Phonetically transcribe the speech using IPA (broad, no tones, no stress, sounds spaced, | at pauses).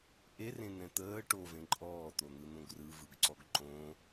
ʔ e r ẽ n̪ ɛ̃ t̪ əː ʈ o v ẽ ǃʼ ɔː t̪ o n̪ ɯ n̪ õ ɡ r ɯ v ɯ ɡ ǀ ɔ ɡ ǃ õ